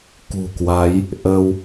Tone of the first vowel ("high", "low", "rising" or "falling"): low